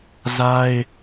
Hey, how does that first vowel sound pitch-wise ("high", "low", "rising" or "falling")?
high